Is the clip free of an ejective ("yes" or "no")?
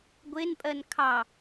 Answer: no